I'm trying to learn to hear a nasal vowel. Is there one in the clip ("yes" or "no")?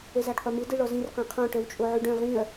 yes